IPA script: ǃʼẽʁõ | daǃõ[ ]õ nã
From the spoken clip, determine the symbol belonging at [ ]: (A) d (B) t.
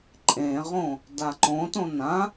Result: B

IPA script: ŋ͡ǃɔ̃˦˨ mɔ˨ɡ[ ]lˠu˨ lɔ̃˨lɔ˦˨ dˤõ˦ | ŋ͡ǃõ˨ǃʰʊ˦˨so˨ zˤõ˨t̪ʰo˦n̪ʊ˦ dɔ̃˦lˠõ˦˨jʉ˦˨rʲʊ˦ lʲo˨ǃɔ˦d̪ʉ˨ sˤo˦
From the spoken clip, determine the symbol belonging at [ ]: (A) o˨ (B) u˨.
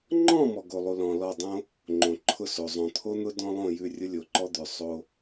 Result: A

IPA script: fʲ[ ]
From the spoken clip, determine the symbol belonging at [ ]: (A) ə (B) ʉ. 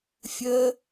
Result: A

